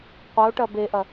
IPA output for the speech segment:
qʷ ɐ o̯ ʈ ɐ b e ʔ ɐ

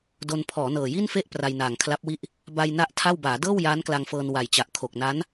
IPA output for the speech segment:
d o˧ n pʰ ɔː˩˦ n ɤː˨˩ j i˥˩ n f e˥˩ ʔ p r a˧ j n aː˨˩ ŋ kʰ l a˦˥ p̚ w i˥˩ ʔ | b a˧ j n a˥˩ ʔ tʰ a˥˩ w b aː˩˦ d ɤː˥˩ w j aː˦˥ n k l a˧ ŋ f ɤː˧ n w a˨˩ j t͡ɕ a˨˩ ʔ kʰ o˨˩ k̚ n a˦˥ n

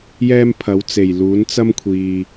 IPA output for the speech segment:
j ɛː˥ m pʰ ɐ˨˥ w t͡s e˨˩ j l uː˨˥ n t͡s ɐ˥ m kʷʰ iː˨

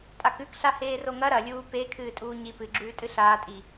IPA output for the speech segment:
tʼ a k ʉ k ɬ a h eː r o ŋ ɐ ɾ ɐ lʲ uː p e kʰ ɨː tʼ uː ɲ i p ɨ ɡ͡ǁ ʉː tʼ ɨ ɬ aː tʼ i

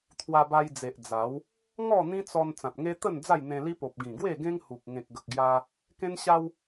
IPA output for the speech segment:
t̪ʰ w a˧ b a˧ j d͡z e˨ ʔ d͡z a˨˦ w | ŋ ɔ˥˧ n̪ ĩ˦ t͡s ɔ˧ n t͡s ã˨ t̚ ŋ e˦ t̪ ə˥˧ n d͡z a˥˧ j n̪ ẽ˧ l i˦ p o˨ p̚ ɡ ĩ˨˩ ɡ w e˥˧ ɡ ẽ˦ ŋ h u˨ k̚ ŋ ẽ˨ k̚ ɡ ə˨ k̚ ɡ j a˧ | k ẽ˦ n ɕ a˦ w

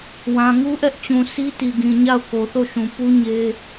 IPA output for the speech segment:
w ã˨ ŋ u˦ ʔ ɛ˦ ʔ t͡ɕ ũ˨ s i˦ t i˨ ɡ ĩ˨ ɲ a˦˨ ʊ̯ k o˨ θ o˦˨ ʃ ũ˨ p u˦ ɲ e˦

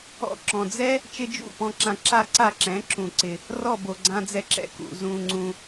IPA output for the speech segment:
ɔ̰˧ ǁ ɔ̃˩ d͡z ɛ˥ | t͡ʃ ɪ˥ d͡ʒ ṵ˥˩ p ɔ̃˧ ǁ ã˧ ǁ a˥˩ ǀ a˥˩ ǁ ɛ̃˩˥ ǁ ũ˩ ǀ ɪ˩ | r ɔ˥˩ b o˩ ɡ͡ǀ ã˧ d͡z ɛ˧ ǁ ɛ̰˧ k ṵ˩ z ũ˩ ŋ͡ǀ ũ˩

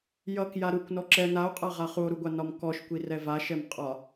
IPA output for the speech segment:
j ʌ k j a ɾ u kʷ n ɔ ǁ ɛ n a o̯ qʼ a ʁ a χ u o̯ ɾ u ɡʷ a n ɒ m k ɔ ʃ kʷ i r ɛ v a ʃ ɛ m qʼ ɒ

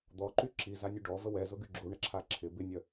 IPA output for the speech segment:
d̪ ɔ ǃ y ǁ i z a nʲ u ɖ ɔ v ə w ɛ z ʊ ɡ y ɡ͡ǁ u ɳ ə ǁʰ a ǁʰ ɪ b ɪ nʲ œ

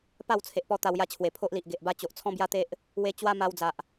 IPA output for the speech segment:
p a˥˧ w t͡sʰ e˨ ʔ p ɔ˧ t̪ a˧ w j a˥˧ t͡ɕʰ w e˨˩ pʰ o˦ ʔ l i˨ ʔ ɡ e˨ ʔ b a˦ t͡ɕ o˨ ʔ t͡sʰ ɔ̃˦ b j a˦ t̪ e˦ ʔ | w e˧ t͡ɕ w a˦ m a˧ w d͡z a˨ ʔ

